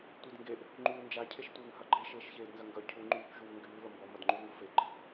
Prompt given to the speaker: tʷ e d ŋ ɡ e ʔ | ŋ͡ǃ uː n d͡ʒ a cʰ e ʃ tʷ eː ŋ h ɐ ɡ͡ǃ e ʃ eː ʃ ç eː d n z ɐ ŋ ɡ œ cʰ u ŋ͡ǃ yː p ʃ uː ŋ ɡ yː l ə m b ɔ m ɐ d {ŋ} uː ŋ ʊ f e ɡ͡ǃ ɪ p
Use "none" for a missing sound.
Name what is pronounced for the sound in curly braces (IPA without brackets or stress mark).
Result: ŋ͡ǃ